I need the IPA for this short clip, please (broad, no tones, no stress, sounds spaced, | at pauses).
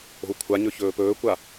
o̤ u̯ kʷʰ a ɲ ɵ ç ɵː p ɵː kʷ a